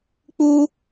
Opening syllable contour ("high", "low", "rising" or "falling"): high